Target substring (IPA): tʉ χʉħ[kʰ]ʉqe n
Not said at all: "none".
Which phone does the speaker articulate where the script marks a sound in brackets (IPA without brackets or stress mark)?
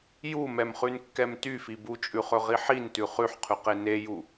qʰ